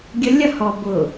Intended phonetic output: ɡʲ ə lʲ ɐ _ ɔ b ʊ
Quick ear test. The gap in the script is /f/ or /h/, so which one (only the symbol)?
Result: h